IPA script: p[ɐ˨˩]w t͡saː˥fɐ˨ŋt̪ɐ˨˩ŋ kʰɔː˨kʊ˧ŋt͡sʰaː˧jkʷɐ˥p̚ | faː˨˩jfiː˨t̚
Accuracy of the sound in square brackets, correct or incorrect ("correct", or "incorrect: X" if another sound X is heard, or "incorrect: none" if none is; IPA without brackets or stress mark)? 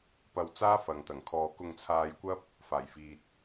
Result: incorrect: ɐ˧